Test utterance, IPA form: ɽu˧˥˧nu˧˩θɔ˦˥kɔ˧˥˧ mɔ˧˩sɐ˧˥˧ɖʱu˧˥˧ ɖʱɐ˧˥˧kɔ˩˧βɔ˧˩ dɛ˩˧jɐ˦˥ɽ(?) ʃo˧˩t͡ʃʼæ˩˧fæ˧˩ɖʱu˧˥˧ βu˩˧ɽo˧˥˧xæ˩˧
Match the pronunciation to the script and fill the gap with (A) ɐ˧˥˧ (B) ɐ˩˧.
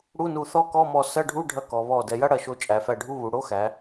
B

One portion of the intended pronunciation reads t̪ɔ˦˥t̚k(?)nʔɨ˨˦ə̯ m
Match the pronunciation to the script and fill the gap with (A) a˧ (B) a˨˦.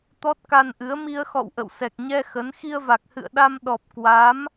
A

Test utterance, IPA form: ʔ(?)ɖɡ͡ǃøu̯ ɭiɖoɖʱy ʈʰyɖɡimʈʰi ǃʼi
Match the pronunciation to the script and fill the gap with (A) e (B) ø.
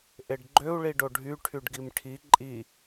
A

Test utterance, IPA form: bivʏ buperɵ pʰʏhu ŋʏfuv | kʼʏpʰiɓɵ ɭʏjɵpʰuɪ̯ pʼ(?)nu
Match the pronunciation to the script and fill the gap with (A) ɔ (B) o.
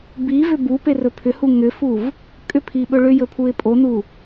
B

